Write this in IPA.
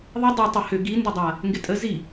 ðˤ ɪ dˤ ʏ tˤ ə h ʏ ɡ i n d ɐ dˤ a | ŋ ɡ ɪ tʼ ə z i

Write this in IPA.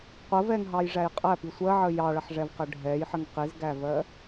qʷ ə v ɛ ŋ ɦ ɑ j ʐ æ j qʼ æ p i sʷ ɜ ʕ ə j ɑ ɭ ʌ ħ ʐ ɛ v q ɜ ɖʱ ɛ j ħ ə ŋ q i z ɡ æ v ɜ

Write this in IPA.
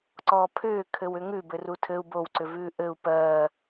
ǀ ɔː pʰ ʏː kʰ ɘ w ʏ ŋ ʉ b ɘ r u tʰ ɘ u̯ b o w ǀ ʏ v ʉː ʔ ɘ u̯ p ɜː

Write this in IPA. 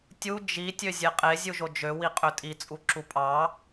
tʲ u d͡ʒ i tʲ ø zʲ e qʼ e zʲ u ʒ o d͡ʒ ø w i qʼ ø tʼ i t͡sʼ u ǁ u pʼ ɑ

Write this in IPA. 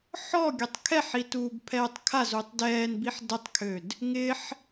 ħ ɔ ɡʲ ɔ tˤ kʰ ɛ ħ i t uː b pʰ ɛː tˤ kʰ a z uː tˤ d ɛː n b i ħ d ə tˤ kʰ ø d | ŋ ɪ ħ

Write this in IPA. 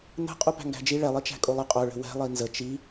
n ə̤ qʼ u p æ̤ ŋ ɡ æ̤ d͡ʒ i ɭ ɛ lˠ i t͡ʃ æ̤ kʼ o lˠ ə qʼ o ɭ ə̤ w ɛ̤ lˠ i n z ə t͡ʃ i

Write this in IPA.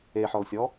e ħ ɔ l sʲ ɔ

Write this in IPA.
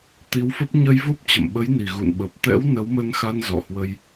t̪ i˨˦ w f ə˦˥ p̚ ɲ ə˧ j v o˦˥ p̚ t͡ɕ ə̰˧˨ m ɓ ə˨˦ j n i˨˩ ɣ ṵ˧˨ n ɓ ə˨˩ p̚ t̪ ɛ̰˧˥ w n ə˨˦ w m ə˧ n x a˧ n z ɔ̰˧˨ h w ə˧ j

